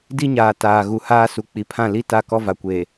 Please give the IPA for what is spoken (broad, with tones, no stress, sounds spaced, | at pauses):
d i˦ ɲ aː˨ t aː˨ ɣ u˨ h aː˦ s u˨ k͡p i˨ pʰ ã˦˨ l i˦ t a˦˨ k ɔ˦ v a˨ kʷ eː˨